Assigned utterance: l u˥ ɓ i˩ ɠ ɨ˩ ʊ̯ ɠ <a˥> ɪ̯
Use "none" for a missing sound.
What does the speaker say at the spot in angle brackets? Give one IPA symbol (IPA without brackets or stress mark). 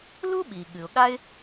a˥